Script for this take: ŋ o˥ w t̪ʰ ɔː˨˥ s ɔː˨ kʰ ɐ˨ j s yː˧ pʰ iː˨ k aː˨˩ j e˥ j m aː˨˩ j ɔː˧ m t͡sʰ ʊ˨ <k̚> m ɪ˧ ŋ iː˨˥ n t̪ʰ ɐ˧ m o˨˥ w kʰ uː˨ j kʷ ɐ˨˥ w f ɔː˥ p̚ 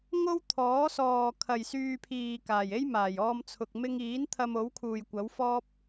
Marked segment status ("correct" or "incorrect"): correct